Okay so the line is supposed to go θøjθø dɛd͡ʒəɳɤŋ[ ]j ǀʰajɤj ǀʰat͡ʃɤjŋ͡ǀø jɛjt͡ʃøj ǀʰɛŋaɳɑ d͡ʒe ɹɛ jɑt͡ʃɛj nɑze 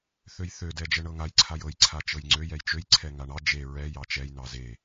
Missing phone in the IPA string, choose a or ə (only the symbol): a